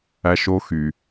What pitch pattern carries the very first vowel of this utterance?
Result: high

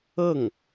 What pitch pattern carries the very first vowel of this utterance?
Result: falling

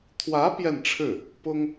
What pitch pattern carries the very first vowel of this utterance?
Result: rising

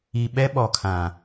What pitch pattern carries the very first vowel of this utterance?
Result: low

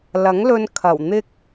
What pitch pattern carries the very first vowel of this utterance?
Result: rising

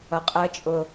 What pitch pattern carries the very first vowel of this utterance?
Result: low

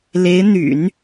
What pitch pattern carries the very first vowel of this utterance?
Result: rising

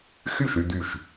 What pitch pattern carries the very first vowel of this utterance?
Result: falling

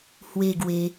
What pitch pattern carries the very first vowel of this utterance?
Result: falling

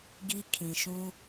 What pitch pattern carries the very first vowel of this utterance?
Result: high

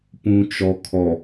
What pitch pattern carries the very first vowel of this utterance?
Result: low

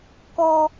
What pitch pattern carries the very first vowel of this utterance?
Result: low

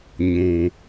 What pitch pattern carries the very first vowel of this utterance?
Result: low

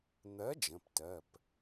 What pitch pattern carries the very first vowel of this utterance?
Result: rising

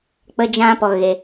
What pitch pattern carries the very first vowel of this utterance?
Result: high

